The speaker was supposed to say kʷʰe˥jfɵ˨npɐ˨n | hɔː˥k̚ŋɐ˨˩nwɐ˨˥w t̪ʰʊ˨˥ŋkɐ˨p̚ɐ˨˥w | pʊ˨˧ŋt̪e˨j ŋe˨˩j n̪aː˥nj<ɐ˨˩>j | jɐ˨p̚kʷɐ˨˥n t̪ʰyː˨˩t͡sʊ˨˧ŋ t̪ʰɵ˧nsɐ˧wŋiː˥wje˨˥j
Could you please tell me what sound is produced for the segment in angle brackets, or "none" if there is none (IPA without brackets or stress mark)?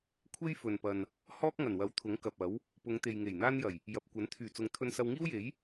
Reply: ɐ˨˩